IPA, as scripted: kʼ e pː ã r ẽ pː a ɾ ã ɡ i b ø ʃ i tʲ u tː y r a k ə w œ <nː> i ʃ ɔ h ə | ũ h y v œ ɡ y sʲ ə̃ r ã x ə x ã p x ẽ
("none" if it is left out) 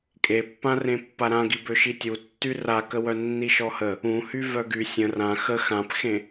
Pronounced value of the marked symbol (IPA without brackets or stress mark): nː